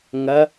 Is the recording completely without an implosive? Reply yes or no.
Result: yes